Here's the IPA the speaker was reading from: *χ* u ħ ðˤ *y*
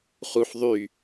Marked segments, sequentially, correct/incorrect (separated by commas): correct, correct